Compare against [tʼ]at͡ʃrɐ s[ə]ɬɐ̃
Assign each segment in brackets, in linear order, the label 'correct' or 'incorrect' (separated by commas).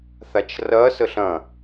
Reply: incorrect, correct